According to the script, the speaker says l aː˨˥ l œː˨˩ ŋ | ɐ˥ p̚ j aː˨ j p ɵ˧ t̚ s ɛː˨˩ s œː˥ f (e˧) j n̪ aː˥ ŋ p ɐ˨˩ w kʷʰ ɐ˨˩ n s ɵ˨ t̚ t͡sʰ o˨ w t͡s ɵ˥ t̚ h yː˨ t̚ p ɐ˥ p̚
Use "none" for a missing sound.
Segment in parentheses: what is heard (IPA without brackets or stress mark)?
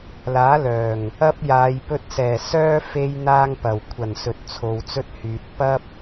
e˥